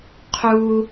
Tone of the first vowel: high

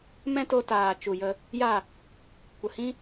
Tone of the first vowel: high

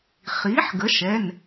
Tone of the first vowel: rising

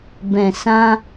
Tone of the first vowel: low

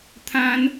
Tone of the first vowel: high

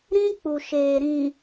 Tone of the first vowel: high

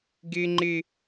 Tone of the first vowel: high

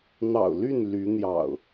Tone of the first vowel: low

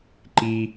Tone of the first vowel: low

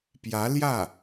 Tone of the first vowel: rising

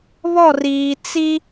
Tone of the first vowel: falling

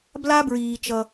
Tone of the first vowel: high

